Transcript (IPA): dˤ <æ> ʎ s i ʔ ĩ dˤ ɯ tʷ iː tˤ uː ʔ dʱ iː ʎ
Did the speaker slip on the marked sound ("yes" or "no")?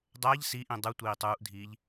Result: no